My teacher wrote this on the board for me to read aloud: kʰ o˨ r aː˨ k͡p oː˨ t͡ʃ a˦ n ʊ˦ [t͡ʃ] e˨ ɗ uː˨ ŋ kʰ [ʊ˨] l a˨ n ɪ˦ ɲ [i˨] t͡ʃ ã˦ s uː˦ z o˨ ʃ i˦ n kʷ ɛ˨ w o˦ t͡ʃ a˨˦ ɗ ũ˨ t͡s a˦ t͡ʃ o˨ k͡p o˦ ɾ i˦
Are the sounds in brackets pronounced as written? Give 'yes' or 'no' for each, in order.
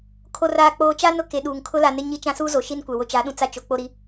no, no, no

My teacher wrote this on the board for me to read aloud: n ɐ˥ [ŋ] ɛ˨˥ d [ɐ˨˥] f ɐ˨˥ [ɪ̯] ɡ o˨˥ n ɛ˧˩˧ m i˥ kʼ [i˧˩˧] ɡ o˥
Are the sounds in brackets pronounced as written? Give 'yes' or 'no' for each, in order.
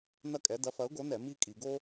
no, yes, no, yes

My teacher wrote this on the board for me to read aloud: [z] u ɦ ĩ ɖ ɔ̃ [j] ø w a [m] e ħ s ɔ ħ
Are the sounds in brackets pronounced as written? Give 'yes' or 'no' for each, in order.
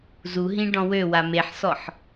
yes, no, yes

